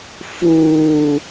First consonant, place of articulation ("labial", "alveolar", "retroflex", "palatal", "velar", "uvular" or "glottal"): labial